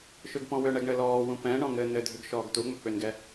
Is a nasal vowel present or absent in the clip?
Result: present